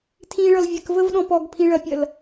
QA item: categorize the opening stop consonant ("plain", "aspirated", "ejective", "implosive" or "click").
aspirated